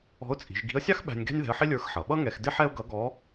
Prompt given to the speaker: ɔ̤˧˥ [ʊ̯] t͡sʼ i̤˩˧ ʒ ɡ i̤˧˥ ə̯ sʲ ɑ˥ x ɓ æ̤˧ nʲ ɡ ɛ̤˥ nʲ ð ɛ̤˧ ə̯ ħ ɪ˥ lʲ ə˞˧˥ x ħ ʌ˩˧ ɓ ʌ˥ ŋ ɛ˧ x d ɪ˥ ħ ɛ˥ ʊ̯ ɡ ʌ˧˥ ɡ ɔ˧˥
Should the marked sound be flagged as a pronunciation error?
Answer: no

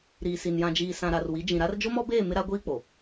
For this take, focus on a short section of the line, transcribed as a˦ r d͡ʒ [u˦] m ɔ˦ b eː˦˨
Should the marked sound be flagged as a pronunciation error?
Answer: yes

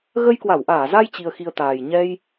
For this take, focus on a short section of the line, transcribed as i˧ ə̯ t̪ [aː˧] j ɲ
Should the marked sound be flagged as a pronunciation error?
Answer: yes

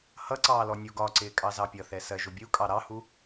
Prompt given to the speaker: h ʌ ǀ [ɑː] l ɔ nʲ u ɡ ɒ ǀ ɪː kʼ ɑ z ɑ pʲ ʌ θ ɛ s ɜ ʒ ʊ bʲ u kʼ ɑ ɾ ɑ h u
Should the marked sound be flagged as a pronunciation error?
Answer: no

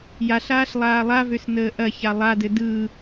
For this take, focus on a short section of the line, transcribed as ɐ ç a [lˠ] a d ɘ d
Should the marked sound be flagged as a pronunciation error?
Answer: no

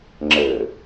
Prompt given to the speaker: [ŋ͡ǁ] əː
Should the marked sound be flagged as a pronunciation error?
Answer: no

